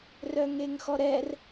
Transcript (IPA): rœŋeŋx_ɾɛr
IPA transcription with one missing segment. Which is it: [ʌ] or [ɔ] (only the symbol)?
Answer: ɔ